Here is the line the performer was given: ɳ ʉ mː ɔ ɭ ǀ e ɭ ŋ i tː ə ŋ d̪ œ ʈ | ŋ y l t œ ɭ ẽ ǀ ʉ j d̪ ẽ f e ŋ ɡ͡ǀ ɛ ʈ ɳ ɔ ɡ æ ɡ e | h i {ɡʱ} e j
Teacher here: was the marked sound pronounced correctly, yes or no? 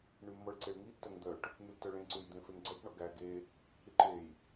no